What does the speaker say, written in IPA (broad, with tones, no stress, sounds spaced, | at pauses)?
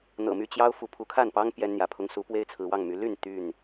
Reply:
n̪ ɤ̰˨˩ m y˥˨ t͡ɕ j ɑ˦ ʊ̯ f u˨˦ pʰ u˨˦ kʰ a˥˨ n p ɑ˦ ŋ p j ɛ˦ n n̪ j ä˨˦ pʰ ʊ˦ ŋ s u˨˦ p w e˦ ɪ̯ t͡sʰ ɹ̩˨˦ w ɑ˥˨ ŋ m y˨˦ l y˥˨ n t̪ y˥˨ n